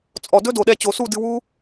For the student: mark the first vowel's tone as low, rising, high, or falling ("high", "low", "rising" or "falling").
low